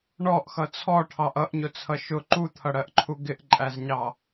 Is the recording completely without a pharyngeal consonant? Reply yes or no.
yes